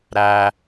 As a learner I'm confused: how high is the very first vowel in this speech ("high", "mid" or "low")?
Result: low